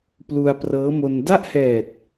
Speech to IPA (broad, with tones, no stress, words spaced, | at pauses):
plu˧a̯prɤː˦˥mo˧n da˥˩ʔhɛː˨˩t̚